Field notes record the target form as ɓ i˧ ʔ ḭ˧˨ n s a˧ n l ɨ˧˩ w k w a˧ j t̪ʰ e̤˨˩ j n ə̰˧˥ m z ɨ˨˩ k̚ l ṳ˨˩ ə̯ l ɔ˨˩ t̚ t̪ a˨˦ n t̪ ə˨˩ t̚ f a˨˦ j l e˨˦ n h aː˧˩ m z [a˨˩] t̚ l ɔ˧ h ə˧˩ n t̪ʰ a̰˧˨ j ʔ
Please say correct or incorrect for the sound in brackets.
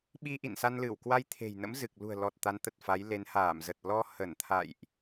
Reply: incorrect